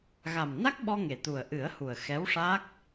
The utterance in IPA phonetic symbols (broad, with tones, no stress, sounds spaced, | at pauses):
ɣ a˨˩ m n a˦˥ k̚ ɓ ɔ˧ ŋ e˨˩ t̪ u˨˩ ə̯ ʔ ɨ˨˩˦ ə̯ h u˨˩ ə̯ x ɛ˧˥ w ʂ a˦˥ k̚